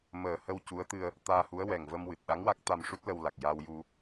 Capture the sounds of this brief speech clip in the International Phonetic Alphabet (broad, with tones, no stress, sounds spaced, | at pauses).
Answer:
m əː˨˩ h ə˧ w c u˧˥ ə̯ t̪ ɨ˧ ə̯ | t̪ aː˧ h u˧˥ ə̯ w ɛ˨˩ ŋ v ə˧ m w ɨ˨˩ t̚ ɗ a˧˥ ŋ w a˦˥ k̚ t̪ a˧ m ʂ u˦˥ t̚ l ə˧ w l a˨˩ k̚ j a˧ w j u˧